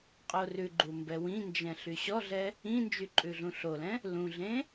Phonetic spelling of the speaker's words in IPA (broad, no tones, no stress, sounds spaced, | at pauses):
qʼ o r ʉ ɡ͡ǃ u m b ɛ w ĩ n d͡ʒ ɛ̃ ɬ y ɕ ɔ ɮ ɛ | ĩ n d͡ʒ y ǃʼ ʉ ɮ ũ ɬ o l ɛ̃ | l ũ ɮ ẽ